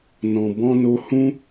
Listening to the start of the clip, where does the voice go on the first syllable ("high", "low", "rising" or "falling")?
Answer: low